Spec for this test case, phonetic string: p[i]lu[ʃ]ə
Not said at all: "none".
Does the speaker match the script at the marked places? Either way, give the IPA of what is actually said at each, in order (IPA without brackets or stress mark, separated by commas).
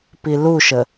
i, ʃ